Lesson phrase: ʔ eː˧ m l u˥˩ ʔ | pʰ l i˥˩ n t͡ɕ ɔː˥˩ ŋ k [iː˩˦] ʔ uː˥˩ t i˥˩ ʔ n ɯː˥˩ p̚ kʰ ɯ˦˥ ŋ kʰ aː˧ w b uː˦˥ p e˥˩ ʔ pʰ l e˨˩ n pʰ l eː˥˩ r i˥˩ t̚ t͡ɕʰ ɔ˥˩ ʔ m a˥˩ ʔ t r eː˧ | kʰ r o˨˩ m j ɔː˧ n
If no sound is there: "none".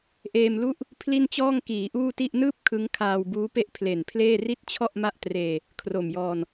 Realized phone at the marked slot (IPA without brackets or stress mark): iː˩˦